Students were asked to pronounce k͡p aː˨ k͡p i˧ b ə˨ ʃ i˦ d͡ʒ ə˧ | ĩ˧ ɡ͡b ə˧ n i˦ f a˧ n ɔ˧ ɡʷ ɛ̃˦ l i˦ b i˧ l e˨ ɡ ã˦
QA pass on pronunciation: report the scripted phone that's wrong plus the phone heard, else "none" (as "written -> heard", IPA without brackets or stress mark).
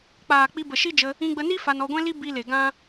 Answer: none